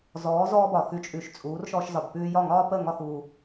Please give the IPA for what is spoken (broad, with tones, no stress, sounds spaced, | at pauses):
z ɔː˩˥ z ɔː˥ b ɒ˩ x ʉ˧ t͡ʃʼ ʉ˩˥ ʃ t͡sʼ uː˩˥ r ʃ ɔː˧ ʃ z ɒ˩ b p ʉː˧ j ɒ˥˩ ŋ ɒː˥ p ə˥˩ ŋ ɒ˥˩ x uː˩